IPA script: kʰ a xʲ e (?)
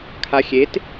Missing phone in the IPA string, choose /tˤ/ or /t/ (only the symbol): t